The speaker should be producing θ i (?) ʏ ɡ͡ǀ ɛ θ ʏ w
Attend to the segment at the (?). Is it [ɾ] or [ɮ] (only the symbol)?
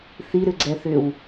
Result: ɾ